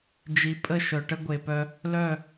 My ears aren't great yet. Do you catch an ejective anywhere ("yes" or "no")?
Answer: yes